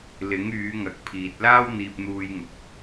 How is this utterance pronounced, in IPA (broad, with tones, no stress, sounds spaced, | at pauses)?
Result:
l ɪ˨˥ ŋ yː˨˧ ŋ ɐ˨ k̚ pʰ iː˨ t̚ l aː˥ w n̪ iː˧ p̚ n̪ uː˧ j ŋ ʊ˨ k̚